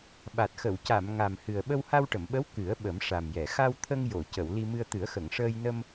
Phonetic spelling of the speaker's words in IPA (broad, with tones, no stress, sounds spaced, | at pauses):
ɓ a˨˩ t̚ x ə˨˩˨ w c a˨˩˨ m ŋ a˨˩ m h ɨ˨˩ ə̯ ɓ ə˧ w h a˧ w ʈ ə˨˩˨ m ɓ ə˧˥ w k ɨ˨˩˦ ə̯ ɓ ə˨˩˦ m ʂ a˨˩ m j ɛ˨˩˨ x a˧ w t̪ʰ ə˧ ŋ j o˨˩˨ c ə˨˩˨ w l i˧ m ɨ˧ ə̯ t̪ ɨ˨˩˦ ə̯ x ə˨˩˨ ŋ ʂ əː˧ j n ə˧ m